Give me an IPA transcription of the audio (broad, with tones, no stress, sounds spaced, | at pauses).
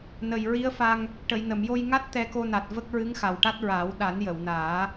n ə˨˩ j ɹ i˧˥ ə̯ f a˧ ŋ | ʈ ə˨˩˨ j n ə˨˩˨ m j o˧ j ŋ a˦˥ t̚ t̪ ɛ˧ k o˧ n a˨˩ t̚ v ə˦˥ k̚ ɹ ɨ˧˥ ŋ x a˨˩ w ʈ a˦˥ t̚ ɹ aː˨˩˦ w ɗ a˨˩˦ n j ə˨˩˨ w n aː˨˩˦